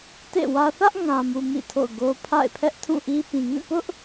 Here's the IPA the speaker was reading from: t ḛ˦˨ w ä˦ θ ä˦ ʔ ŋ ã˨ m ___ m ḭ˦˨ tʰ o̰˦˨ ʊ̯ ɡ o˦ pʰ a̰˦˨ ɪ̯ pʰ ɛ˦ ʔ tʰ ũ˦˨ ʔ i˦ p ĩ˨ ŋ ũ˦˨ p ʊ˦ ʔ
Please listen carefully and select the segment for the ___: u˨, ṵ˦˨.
u˨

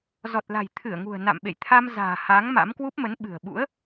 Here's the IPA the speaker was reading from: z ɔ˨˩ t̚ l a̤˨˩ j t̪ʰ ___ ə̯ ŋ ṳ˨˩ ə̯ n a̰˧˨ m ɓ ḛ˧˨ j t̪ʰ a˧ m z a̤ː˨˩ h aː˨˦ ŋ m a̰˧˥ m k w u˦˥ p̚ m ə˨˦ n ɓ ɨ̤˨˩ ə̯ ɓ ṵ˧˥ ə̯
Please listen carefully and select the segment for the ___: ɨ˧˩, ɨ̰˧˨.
ɨ˧˩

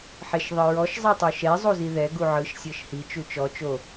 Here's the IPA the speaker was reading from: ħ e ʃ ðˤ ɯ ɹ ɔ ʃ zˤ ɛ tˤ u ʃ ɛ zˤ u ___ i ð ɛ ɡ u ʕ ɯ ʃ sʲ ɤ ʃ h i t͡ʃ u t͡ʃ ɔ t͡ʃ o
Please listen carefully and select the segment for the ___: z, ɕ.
z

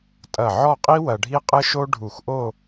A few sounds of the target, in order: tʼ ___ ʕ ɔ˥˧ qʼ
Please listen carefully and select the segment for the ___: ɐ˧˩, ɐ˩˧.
ɐ˧˩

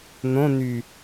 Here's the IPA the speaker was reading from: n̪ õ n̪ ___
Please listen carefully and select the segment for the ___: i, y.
y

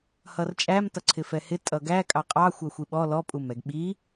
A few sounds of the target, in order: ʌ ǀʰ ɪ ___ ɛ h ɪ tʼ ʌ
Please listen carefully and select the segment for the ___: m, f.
f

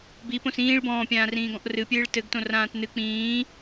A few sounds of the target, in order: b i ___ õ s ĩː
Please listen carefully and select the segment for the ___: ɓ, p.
p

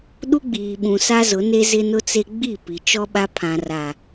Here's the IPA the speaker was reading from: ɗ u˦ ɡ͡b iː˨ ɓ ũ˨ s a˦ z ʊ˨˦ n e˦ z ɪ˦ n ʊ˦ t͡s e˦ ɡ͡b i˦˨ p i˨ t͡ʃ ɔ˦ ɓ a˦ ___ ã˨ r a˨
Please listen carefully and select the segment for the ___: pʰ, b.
pʰ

